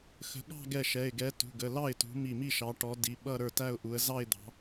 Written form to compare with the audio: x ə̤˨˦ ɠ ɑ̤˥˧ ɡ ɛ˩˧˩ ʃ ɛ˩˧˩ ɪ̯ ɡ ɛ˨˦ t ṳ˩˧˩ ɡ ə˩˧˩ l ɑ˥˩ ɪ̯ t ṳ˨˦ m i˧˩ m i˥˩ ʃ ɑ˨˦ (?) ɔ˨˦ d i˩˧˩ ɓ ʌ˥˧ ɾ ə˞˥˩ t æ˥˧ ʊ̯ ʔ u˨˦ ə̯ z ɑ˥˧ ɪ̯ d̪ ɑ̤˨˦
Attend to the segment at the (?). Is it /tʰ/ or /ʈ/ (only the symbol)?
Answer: ʈ